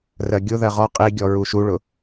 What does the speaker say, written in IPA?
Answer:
r ɜ ɡʲ ʊ ð ɜ ʁ ɔ qʼ i ɡʲ ɔ ɹ u ʃ u ɭ ʊ

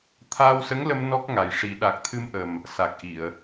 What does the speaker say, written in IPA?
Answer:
t̪ʰ aː˧ w s ə˧˥ ŋ l ə˧ m n ɔ˦˥ k̚ ŋ a˨˩ j ʂ i˨˩˦ ɗ a˨˩ k̚ t̪ʰ ɨ˧ m ʔ ə˨˩ m | s a˨˩ k̚ ʔ i˨˩˨ ə̯

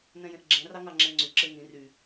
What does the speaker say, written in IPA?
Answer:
n ɛ̃ j ẽ ʔ ɡ͡ǁ ɛ̃ r ɑ ŋ ɑ ŋ͡ǁ ɛ̃ ŋ͡ǀ y ǁ e ŋ ĩ r y

